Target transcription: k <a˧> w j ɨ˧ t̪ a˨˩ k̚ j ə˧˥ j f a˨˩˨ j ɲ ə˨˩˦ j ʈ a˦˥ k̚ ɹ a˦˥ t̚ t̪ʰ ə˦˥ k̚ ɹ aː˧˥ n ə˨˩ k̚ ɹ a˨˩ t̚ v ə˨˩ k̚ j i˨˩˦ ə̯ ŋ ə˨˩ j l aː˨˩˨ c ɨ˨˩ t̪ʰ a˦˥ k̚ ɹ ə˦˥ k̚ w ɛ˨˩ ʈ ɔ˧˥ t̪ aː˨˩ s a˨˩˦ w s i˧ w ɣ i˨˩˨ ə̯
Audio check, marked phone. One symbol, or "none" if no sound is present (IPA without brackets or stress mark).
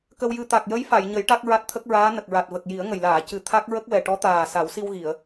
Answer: ə˧